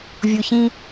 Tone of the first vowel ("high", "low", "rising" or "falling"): low